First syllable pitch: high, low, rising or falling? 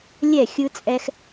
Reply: falling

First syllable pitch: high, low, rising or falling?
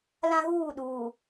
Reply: high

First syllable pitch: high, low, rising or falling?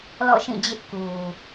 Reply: falling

